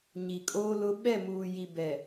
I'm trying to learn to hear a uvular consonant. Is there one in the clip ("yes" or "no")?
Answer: no